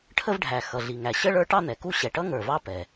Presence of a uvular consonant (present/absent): absent